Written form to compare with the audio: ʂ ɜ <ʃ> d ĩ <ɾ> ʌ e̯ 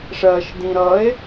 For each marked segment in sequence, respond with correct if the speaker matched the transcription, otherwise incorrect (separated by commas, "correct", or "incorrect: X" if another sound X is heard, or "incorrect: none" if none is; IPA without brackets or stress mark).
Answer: correct, correct